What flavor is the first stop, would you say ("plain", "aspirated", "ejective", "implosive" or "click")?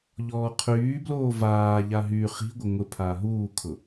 aspirated